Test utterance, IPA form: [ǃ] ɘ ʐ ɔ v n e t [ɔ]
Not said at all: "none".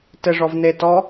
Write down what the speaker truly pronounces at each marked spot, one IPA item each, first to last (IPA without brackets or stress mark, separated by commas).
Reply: t, ɔ